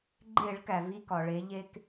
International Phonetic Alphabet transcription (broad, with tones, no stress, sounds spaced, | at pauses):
ɡ͡ǃ e˧˩˧ ɭ k æ˩ v i˧ k ɒ˩ ɭ e˩˧ ʎ e˧ k